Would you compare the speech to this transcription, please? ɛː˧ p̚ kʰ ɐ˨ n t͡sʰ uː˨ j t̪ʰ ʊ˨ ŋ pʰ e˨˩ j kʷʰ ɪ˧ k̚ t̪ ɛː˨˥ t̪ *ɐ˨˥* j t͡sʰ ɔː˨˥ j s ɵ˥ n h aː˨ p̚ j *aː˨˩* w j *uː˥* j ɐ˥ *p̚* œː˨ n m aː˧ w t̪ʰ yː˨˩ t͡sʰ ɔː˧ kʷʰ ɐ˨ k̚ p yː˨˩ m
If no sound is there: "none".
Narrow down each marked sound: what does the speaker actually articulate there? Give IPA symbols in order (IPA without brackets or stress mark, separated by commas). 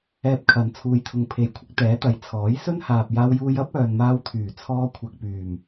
ɐ˨˥, aː˧, uː˧, p̚